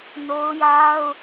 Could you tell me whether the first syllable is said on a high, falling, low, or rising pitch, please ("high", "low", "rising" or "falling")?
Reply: high